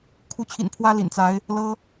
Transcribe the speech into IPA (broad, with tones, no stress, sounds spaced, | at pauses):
kʰ u˨˦ t͡ɕʰ ḭ˨˩ n pʰ w ä˦ l ḭ˨˩ n t͡s a˨˦ ɪ̯ | l ɤ˦